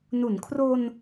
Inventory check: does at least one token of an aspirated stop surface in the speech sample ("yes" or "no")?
yes